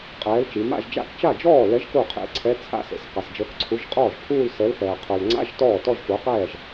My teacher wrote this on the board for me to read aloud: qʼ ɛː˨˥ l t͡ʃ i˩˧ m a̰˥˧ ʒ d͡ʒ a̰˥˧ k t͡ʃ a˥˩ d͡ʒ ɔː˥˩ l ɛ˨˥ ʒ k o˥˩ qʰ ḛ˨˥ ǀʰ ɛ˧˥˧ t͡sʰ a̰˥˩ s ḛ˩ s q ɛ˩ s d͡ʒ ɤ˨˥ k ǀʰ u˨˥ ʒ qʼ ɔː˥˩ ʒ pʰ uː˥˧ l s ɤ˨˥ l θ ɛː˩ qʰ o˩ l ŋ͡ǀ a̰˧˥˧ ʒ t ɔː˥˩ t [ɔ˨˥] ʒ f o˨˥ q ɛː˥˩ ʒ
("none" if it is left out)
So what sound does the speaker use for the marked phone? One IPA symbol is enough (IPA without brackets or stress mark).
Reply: ɔ˥˧